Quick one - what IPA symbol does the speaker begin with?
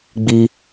ɡ͡b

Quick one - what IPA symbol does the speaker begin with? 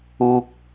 uː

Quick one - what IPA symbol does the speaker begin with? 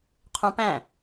qʰ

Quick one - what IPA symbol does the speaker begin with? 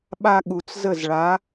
ɓ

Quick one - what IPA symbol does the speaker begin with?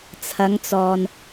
t͡sʰ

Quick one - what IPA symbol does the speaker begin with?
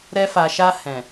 ɾ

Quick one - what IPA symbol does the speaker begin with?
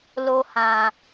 l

